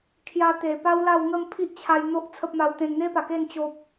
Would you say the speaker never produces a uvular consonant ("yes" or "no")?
yes